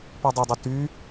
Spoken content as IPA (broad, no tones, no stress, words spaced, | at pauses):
pudˤədˤu ty